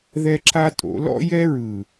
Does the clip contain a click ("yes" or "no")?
yes